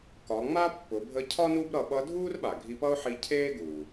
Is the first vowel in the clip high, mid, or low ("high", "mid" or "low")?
low